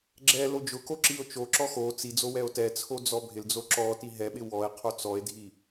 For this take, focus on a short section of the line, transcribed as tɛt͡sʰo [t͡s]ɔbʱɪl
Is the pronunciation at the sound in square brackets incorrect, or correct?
incorrect